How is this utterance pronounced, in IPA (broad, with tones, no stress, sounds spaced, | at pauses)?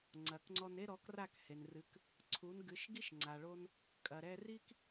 ŋ͡ǀ ɐ˩ k ŋ͡ǀ ɔ˧ n e˥ ɾ ɔ˩˥ k r a˥˩ k h e˩ n r ɨ˩˥ k | ǀʰ u˩˥ n ɡ ɨ˩˥ ʃ ɡ i˥ ʃ ŋ͡ǀ a˩ ɭ o˧ n | kʼ ɐ˩ ɾ ɛ˧ r i˥ k